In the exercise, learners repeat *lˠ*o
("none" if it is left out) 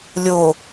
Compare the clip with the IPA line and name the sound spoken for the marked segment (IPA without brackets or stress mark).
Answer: lʲ